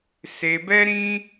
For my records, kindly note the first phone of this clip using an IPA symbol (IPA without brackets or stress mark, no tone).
s